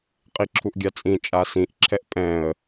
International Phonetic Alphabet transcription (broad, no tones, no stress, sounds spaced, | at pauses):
qʼ i ǁʰ u ʔ ɡʲ a t͡sʼ ĩ t͡ʃʼ a s ĩ ʔ ǁʰ ɛ ʔ pʼ ɛ̃ ə̯